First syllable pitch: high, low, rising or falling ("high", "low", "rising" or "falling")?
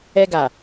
high